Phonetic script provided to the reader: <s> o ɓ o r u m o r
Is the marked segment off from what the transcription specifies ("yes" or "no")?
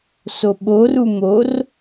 no